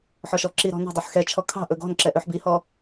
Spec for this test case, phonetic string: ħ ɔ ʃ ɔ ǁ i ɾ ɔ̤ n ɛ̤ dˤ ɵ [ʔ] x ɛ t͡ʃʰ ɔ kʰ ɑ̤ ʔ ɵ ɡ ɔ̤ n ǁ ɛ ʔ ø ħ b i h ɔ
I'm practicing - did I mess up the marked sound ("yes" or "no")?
yes